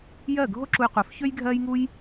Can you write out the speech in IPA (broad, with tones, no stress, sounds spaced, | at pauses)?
j ɜː˥˩ ɡʱ o˥ ǁ u˧ j qʷ œ˩˥ f ç ø˥ j ɡʱ ɜː˥ j ŋ u˥ j